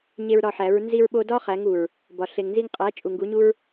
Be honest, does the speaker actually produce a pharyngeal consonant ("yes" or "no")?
yes